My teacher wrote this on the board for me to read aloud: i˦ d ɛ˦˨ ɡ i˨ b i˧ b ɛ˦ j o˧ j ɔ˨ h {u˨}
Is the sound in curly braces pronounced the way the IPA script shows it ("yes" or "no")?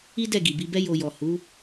no